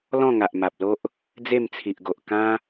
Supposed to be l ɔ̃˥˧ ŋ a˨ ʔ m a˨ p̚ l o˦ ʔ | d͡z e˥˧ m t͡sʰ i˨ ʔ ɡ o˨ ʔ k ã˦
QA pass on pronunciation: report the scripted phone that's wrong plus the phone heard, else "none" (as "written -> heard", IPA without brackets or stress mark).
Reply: none